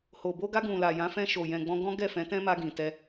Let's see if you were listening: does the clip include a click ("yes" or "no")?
no